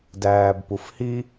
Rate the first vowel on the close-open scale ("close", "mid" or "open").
open